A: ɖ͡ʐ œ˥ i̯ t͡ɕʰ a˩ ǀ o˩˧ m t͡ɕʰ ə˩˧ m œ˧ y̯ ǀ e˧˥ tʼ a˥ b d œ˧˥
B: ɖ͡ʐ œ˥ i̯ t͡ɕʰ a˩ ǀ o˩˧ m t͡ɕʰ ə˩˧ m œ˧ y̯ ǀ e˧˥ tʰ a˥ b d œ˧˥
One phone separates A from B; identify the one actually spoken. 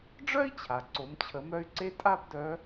A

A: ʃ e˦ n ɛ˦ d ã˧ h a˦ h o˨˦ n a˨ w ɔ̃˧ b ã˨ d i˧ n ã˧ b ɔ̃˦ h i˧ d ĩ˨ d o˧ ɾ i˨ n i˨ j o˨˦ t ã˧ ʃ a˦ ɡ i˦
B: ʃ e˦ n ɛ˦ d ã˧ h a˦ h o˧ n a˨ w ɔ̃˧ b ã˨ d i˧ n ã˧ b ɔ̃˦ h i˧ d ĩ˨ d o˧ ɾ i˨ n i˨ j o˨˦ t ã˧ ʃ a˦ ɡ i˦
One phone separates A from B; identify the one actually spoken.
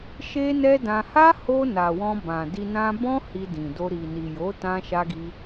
B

